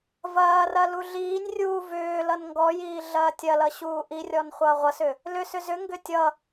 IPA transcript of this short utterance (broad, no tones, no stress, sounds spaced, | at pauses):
v ɐː r ɐ l u ɮ iː nʲ rʲ uː v ʏː l ʌ n ŋ ɡ ɔ j iː ɮ ɐː tʲ ɐ l ʌ ɕ uː ʔ i rʲ ɔ n χʷ ʌː ʁʷ ʌ s ʏ | l ʏ s ʏ z ʏ ŋ ɡ ʏ tʲ ʌ